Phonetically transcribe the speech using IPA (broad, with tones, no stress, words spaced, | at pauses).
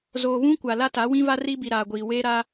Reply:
zoː˨βũ˦kʷa˨ la˦ta˨˦wĩ˦va˦ ri˦bi˨ɾaː˨ɡʷiː˨ weː˦ɾa˦